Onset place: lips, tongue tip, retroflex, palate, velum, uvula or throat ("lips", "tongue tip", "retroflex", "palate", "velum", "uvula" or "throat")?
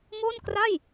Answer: velum